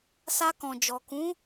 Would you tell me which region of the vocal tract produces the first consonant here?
tongue tip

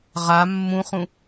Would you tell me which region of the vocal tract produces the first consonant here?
uvula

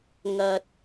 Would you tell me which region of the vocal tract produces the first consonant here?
velum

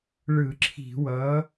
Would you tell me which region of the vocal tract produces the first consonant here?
retroflex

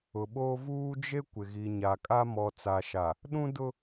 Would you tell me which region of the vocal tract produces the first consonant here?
lips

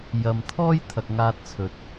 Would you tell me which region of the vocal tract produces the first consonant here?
palate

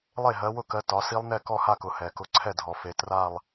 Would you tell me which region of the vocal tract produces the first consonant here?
tongue tip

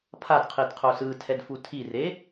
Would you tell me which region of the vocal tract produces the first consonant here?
lips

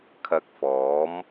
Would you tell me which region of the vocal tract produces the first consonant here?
velum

